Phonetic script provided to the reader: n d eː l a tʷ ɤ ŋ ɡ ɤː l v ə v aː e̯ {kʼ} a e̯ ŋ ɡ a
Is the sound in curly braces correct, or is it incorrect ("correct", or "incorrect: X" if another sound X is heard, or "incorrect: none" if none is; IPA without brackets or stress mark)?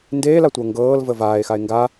incorrect: x